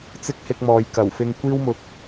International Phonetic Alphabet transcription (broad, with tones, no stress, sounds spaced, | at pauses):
t͡s ɪ˥ k̚ h ɪ˧ k̚ m ɔː˨ j k ɐ˨˩ w f ɪ˧ ŋ kʷ iː˥ w m ʊ˨ k̚